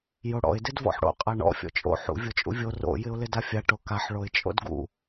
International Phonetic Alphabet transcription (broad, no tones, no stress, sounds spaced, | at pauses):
j o ɽ ɔ̰ ɪ̯ d ɪ d v ɔ̰ ħ ɽ o̰ qʼ a ɳ ɔ̰ fʲ ɔ̰ t͡ʃʼ o̰ ħ ṵ vʲ o t͡ʃʼ ṵ vʲ o r o̰ j ɪ ʊ̯ l ɪ d a fʲ a ʈ o k a ħ ɭ o ɪ̯ t͡ʃʼ o̰ d ɡ ṵ